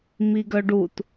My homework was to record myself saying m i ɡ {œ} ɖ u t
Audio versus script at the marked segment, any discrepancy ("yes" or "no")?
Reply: no